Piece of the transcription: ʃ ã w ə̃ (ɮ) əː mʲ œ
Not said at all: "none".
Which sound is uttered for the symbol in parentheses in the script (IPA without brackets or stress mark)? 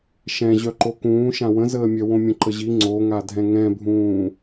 z